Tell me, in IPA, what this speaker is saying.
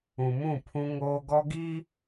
ũ˨ m ũ˦˨ pʰ ũ˦ ŋ oː˦ ɡ ɔ˦ ɡ iː˦

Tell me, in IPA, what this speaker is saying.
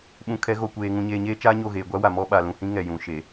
ɓ ũ˨ kʰ ɛ˨˦ ɣ o˨ kʷ eː˨ ŋ ũ˨ ɲ eː˨ ɲ eː˦ t͡ʃ aː˦ ɲ o˦˨ ɣ eː˨ ɡʷ a˦ w a˨ m ɔ˦ ɓ a˨ l ũ˨ h ĩ˦ ŋ ɛ˨ j ũ˨ ʃ e˨

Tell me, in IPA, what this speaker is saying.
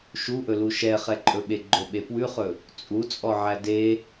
ʃ u ʔ ɵ l u ʃ ɛ χ ɛ ǃʼ ɵ ɓ e ɡ͡ǃ o ɓ e p w ʉ χ ɵ | t͡sʼ u t͡sʼ ɔ ʕ æ d e

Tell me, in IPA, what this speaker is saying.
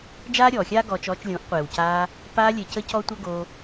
d͡ʒ aː˦ ɾʲ ɔː˨ xʲ aː˦ ɡ ɔː˧ t͡ʃ ɔː˧ t͡ʃ lʲ õ˨˦ ʔ qʷ eː˨ w c aː˧ | p aː˧ lʲ e˨ c ə˧ c ɔ˧ tʷ ə˦ ɡ o˧

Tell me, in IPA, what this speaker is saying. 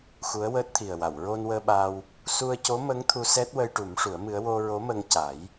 x u˧˥ ə̯ w əː˦˥ t̚ t̪ʰ i˨˩ ə̯ w a˨˩˨ w ɹ o˧ n w əː˧ ɓ a˧ w | s u˧ ə̯ c o˧˥ m ə˧˥ ŋ t̪ʰ u˧ s ɛ˦˥ t̚ w ə˧ j ʈ u˨˩˦ m ʂ u˨˩˦ ə̯ m ɨ˧˥ ə̯ w o˧ ɹ o˧˥ m ə˧ ŋ c a˨˩˦ j

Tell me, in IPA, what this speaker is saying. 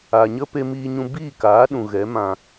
a˨ ɲ ə˦ p e˧ m iː˧ ɲ ũ˧ b iː˦˨ k aː˨˦ ɗ ũ˨ ɣ ɛ˨˦ m ã˧

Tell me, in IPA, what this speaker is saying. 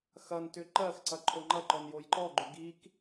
x ɐ n t ʏ ǃ ɜ x ǀ ɐ ǃʰ o ŋ͡ǃ ɐ ǃ ɔ n j o j ǃ ɔ ɡ͡ǃ ʏ ɡ i k

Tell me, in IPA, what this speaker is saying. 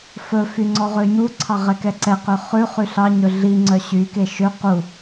f ɵ f y ŋ͡ǀ ɔ ʁ ø ɲ u ǀʰ ɑ ʁ ɛ k ɛ ǀ ɛ q ø χ ʉ χ y ɬ ɑ ɲ ɵ ɮ i ŋ͡ǀ œ ɕ y k e ʃ ø q u

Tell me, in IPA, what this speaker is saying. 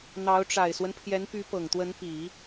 n̪ ɑ˧˥ ʊ̯ ʈ͡ʂ a˨˩ ɪ̯ s w ə˦ n pʰ j ɛ˧˥ n p y˧˥ p ɤ˨˩ ŋ t̪ w ə˧˥ n p i˨˩˦

